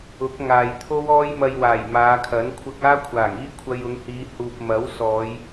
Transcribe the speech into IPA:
ʊ˨˥ k̚ ŋ aː˨ j t̪ʰ o˥ w ɔː˥ j m ɐ˧ j w aː˨˩ j m aː˨˧ kʰ ɐ˨˥ n kʷʰ ɐ˧ k̚ aː˥ kʷʰ aː˨˩ ŋ iː˥ kʷʰ ɐ˧ j ʊ˨˧ ŋ h iː˨˧ h uː˨ p̚ m ɐ˨˥ w s ɔː˨˧ j

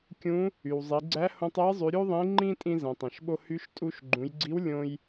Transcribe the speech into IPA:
kʲ ũ˧˥ | y˩ w zˤ i˩˧ ɡ͡ǀ æ˧˥ h õ˧ tˤ ɛ˧˥ j zˤ y˩˧ ɾʲ u˥ ðˤ ĩ˧˥ ŋ͡ǃ ĩ˥ tʼ ĩ˧ z ɛ̃˩ tˤ ẽ˩ ʃ ɓ o˧ h y˧˥ ʃ tʼ u˧ ʃ ɡ͡ǃ ũ˩˧ j ɡ͡ǀ i˧˥ w lʲ õ˧ j

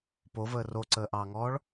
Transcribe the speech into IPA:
p o v əː r o ǀ əː ʔ ɑː ŋ ɔː ɭ

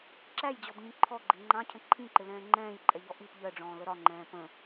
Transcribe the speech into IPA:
ǁ æ j d͡ʑ ɔ b ɲ ĩ ǃʰ ɔ ɡ͡ǃ ɪ ŋ͡ǃ ɑ̃ cʰ ə̃ ǃʰ ĩ ǃ ɪ l ɛ̃ː ŋ͡ǃ ɛ̃ː j ǃʼ ɛ ʎ ɔ ʔ i p ʎ ɜ ɖ͡ʐ ɔ̃ː l ə ɾ ɒ ŋ͡ǃ ɛ̃ː p ə̃

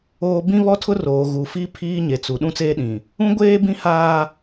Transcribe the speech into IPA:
oː˨ b ĩ˦ β ɔ˦ tʰ ʊ˦ r oː˨ ɣ u˨ f i˦ pʰ iː˦ ɲ e˨ t͡s u˨ ɗ ũ˦ t͡s eː˦ ɗ ĩ˨ | ũ˦ ɡʷ eː˦ b ĩ˦ h aː˦

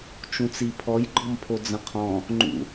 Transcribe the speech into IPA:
t͡ʃ ũ t͡s i pʰ ɔ j ɡ͡ǃ ɔ m pʰ o d͡z ə̃ qʰ ɔ̃ | ŋ͡ǃ ṵ

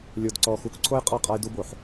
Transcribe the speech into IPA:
lʲ o˨ d ǀ ɔ˨ x u˨˦ k ǀʰ o˦ j qʼ ɔ˦˨ qʼ a˦ j d u˦ b o˨ ħ

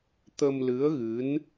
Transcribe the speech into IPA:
t̪ ə˧ m l ɨ˧˥ ə̯ ɣ ɨ˧˥ n

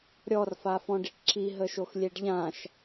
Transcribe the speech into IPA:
ɾʲ ɔ r f a f ɔ̃ ɖ i ʈ ǁ i ɦ ə ʃ o x lʲ e ɖ ʎ ã ʃ

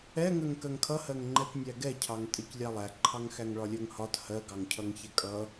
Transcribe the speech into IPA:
ɛ ŋ ɜ ŋ k ɜ ŋ kʰ ʌ h ɜ ŋ ŋ͡ǃ ɛ t nʲ æ ɡ ɛ cʰ ɑ ŋ tʼ ɛ c lʲ ɑ lˠ æ ǃʰ ɑ ŋ x æ ŋ ɭ ɒ lʲ ɜ ŋ h ɒ t h ɜ ɡ ɑ ŋ cʰ ʌ ŋ ç ɛ kʼ ʌ

